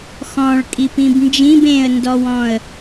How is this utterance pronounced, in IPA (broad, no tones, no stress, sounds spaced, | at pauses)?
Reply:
x ɔ̃ ɭ kʼ i p ĩ b n d͡ʒ ĩ b ẽ ə̯ n d ɔ w ɔ̃ ə̯